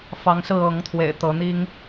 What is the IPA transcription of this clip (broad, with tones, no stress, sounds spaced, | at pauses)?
f ɑ˨˦ ŋ s ɹ̩˥˨ ɤ˨˦ ŋ t̪ʰ w ḛ˨˩ ɪ̯ t̪ ɤ˨˦ n̪ i˦ ŋ